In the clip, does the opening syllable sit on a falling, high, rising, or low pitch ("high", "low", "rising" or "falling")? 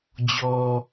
low